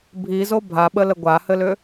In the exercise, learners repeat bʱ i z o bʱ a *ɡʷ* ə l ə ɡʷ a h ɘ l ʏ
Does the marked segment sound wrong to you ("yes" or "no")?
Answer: yes